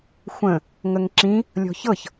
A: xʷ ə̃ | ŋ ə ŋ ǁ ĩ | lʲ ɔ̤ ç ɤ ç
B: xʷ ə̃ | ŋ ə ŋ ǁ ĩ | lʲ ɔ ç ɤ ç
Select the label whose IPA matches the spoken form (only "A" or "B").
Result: A